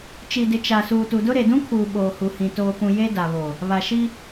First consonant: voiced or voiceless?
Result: voiceless